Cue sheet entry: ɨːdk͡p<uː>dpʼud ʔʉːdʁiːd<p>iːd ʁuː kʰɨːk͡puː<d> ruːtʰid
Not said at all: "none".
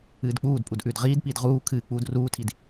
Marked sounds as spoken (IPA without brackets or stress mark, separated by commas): uː, p, d